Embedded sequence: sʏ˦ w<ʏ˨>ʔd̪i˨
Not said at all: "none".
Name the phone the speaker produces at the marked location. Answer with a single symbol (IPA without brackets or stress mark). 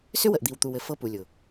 ə˨